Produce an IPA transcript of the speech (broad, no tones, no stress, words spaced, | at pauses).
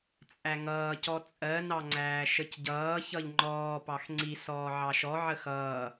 t͡sʼæŋʌːcɔ t͡sʼɜnɑŋ͡ǀæː ʃəcɟʌː çʌʎŋ͡ǃɔːpɑx ŋ͡ǀi sɔːʕɑʃɔ ʕəxʌː